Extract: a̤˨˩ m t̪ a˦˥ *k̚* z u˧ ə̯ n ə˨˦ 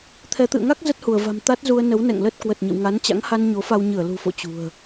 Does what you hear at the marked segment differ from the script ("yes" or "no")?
yes